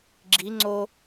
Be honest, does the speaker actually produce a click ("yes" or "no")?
yes